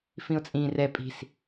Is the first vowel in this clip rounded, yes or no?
no